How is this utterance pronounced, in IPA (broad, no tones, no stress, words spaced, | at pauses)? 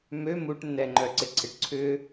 mø muʈ nːɛŋ͡ǃœǀɪǀʰɪʈ ǀʰʏ